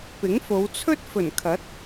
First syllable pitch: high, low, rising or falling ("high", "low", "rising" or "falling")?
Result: rising